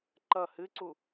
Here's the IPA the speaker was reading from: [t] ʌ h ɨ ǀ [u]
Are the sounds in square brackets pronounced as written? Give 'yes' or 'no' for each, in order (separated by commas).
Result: no, yes